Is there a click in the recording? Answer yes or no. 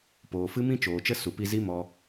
no